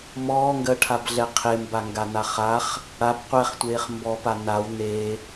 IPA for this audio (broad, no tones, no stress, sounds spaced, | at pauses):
m ɔː ŋ ɡ ɜ ʈʰ a b ɮ ɛ qʰ e m b a ŋ ɡ a n a χ a χ | ɽ a b qʷ ɛ χ tʷ eː χ m b ɔ p a n a w n e